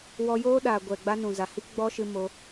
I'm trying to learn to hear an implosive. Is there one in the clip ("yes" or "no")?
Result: yes